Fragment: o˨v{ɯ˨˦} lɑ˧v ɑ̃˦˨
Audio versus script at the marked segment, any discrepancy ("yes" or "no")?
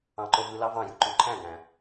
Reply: yes